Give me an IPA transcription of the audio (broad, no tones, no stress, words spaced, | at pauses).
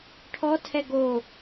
ʈʰɔtʰɛ ɡo